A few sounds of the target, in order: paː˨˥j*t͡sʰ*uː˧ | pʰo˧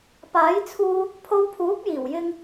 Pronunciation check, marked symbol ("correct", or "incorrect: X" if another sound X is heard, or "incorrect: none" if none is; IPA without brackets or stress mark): correct